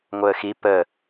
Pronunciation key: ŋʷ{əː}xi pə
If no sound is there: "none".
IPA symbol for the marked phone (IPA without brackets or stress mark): əː